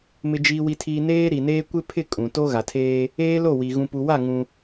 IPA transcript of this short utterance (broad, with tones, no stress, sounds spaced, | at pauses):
m ɪ˨ d͡ʒ iː˨ w i˨ tʰ iː˨ n eː˦ ɾ i˨ n eː˦ kʷ ɪ˦ pʰ ɪ˦˨ kʼ ũ˨ t o˦ ɣ a˨ tʰ eː˦ | eː˦ l o˦˨ w i˨ ɣ ũ˨ p u˨ w a˦˨ ŋ ũ˦